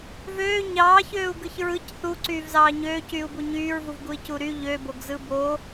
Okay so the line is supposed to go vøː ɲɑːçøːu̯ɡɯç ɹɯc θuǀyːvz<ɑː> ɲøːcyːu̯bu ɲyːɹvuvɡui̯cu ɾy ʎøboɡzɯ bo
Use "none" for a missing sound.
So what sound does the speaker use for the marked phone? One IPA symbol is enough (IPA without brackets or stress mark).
ɑː